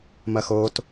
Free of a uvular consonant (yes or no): yes